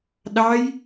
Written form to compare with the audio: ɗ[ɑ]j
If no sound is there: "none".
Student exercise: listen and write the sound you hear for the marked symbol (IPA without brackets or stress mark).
ɑ